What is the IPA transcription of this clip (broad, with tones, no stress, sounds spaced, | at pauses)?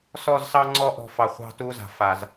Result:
s ɔ˦˨ z s ɑ˦ ŋ͡ǀ ɔ˦ ʔ ɔ̤˨ f ɑ˨ χʷ ɑ̤˦˨ t u˦ z a̤˨ f a˨ z